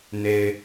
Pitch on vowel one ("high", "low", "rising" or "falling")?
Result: low